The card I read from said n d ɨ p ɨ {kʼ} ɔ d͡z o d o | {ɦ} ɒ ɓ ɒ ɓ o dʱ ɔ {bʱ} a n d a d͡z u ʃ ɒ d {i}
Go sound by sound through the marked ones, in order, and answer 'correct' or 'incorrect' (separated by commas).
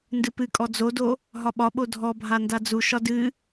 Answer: correct, correct, correct, incorrect